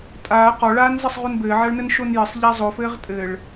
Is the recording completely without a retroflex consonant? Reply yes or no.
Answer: no